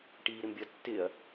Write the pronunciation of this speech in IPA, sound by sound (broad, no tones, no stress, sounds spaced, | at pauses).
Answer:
ʈ iː ɾ ɪ m bʲ ʌ tː ɪ ɐ̯